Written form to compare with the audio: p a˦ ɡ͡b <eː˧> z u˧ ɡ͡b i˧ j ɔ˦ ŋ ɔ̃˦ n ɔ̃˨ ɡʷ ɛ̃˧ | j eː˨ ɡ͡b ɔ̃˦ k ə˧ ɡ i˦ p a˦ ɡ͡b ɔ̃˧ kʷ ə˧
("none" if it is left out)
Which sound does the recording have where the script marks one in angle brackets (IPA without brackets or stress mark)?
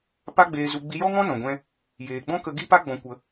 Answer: eː˧